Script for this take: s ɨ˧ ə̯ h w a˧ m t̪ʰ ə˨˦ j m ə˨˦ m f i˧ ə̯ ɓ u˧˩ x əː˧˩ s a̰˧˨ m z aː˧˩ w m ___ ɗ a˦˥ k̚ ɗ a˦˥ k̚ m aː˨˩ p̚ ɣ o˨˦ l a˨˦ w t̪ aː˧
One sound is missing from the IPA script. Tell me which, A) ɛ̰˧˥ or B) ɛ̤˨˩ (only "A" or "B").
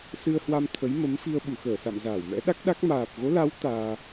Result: A